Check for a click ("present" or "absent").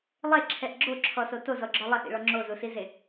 present